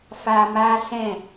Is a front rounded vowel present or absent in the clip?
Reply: absent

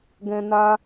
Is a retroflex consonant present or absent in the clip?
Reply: absent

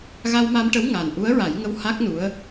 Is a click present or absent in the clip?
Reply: absent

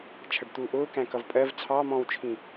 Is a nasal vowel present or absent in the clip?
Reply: present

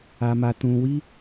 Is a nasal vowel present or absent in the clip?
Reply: present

